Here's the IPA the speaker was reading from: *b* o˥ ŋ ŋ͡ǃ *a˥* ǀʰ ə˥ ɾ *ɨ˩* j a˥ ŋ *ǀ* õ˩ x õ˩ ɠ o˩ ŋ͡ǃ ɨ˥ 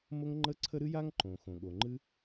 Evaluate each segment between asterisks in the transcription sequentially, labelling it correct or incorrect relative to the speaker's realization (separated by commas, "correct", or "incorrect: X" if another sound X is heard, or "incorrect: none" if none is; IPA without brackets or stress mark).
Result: incorrect: m, incorrect: ə˥, incorrect: ɨ˥, incorrect: ǃ